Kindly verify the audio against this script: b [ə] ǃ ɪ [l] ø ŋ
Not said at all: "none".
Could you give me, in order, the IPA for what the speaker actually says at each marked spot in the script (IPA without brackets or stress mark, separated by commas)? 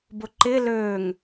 ʊ, l